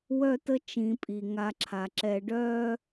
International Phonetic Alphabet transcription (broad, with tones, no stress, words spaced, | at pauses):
wœ˦tə˦ t͡ʃĩ˨pʼi˩ ŋa˨ǁʰa˩ǁɛ˨ɖœː˦